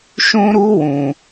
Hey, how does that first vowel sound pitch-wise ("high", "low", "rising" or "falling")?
high